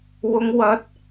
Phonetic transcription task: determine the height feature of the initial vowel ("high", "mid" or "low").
high